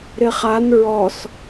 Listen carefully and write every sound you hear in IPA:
ɾ ɪ χ a n ɹ ɔ s

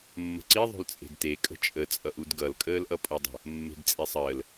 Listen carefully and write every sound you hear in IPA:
mː ə̤ ǀ i ðˤ o̤ l t͡sʼ e̤ d t e kʼ ə̤ t͡ʃʼ ə t͡sʼ ʌ ʔ u d ɡ ʌ l kʼ əː l ʔ ʌ pʼ o dˤ ə̤ | mː e̤ d t͡sʼ e sˤ əː l

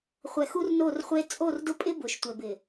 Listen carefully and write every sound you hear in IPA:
χʷ ɛ˨ x u˦ r n o˦˨ r χʷ e˦ t͡sʼ o˦˨ r d ʊ˦ pʼ ɪ˦ b ʊ˨ ʃ tʷ ɛ˨ b ɪ˨

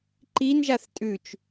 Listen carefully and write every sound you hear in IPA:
ǃ i n ʒ a θ tʼ ʉ t͡ʃ

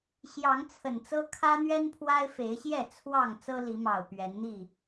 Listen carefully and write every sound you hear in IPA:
ɕ j ɑ˨˦ ŋ t͡sʰ ə˨˩ n t͡s ɤ˦ kʰ ä˦ n̪ ɥ ɛ˦ n pʰ w a˦ ɪ̯ f e˨˦ ɪ̯ ɕ j ɛ˥˨ t͡sʰ w ɑ˥˨ ŋ t͡s ɤ˦ l i˨˦ m ɑ˨˩ ʊ̯ p ɥ ɛ˨˦ n n̪ i˥˨

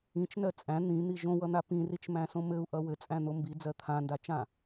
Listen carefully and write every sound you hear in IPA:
ĩ t͡ʃ n ɜ t͡sʼ æ̃ n̪ ĩ n̪ i ʒ õ w ʌ n̪ a p ĩ r i t͡ʃ m æ̃ s õ m ɘ u̯ ʔ ʌ w ɘ t͡sʼ æ̃ n̪ o m b i d͡z ɜ t̪ʰ ã n d a t͡ʃ ã

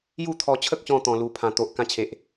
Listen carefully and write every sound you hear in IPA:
j u˥˧ t̪ʰ ɔ˧ t͡ɕʰ ə˦ k̚ ɕ ɔ̃˧ t̪ ɔ̃˧ l u˥˧ pʰ ã˧ t̪ o˨ ʔ k ã˦ t͡ɕʰ e˨ ʔ

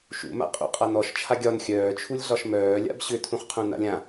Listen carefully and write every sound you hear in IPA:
ʃ ṵ m a̰ qʼ ṵ qʼ a n ɔ ʃ t͡ʃʰ a ɡʲ ɒ n xʲ œː t͡ʃʰ u lʲ ɮ ɒ ʃ m œː lʲ a̰ b ɕ ʏ tʰ ũ χ qʰ ũ n a̰ lʲ ã

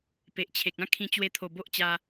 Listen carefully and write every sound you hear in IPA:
p e˨ ʔ t͡ɕʰ e˨ k̚ ã˦ kʰ ĩ˧ t͡ɕ w e˧ t̪ʰ o˨˩ b o˦ ʔ t͡ɕ a˧

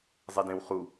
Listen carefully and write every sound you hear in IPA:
zˤ i d ẽ w χ u

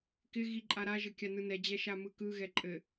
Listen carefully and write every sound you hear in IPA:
k ɪ ɣ i ǃʼ a ɾ a ʒ ɘ kʲ a n ɯ n ɛ d͡ʑ ɛ ʃ a m ɯ k ɯ ɣ ɛ ǃʼ ɘ

